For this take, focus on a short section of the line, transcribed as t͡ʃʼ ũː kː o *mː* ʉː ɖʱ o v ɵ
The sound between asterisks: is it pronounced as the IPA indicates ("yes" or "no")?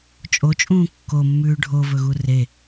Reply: yes